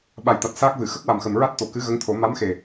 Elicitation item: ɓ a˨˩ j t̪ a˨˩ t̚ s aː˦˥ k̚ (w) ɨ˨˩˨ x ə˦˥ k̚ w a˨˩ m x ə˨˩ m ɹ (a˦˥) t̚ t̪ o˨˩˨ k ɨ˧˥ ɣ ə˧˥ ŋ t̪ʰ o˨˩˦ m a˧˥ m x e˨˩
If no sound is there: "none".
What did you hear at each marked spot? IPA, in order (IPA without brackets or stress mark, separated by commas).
v, a˦˥